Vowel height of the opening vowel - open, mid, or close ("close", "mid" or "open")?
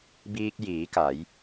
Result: close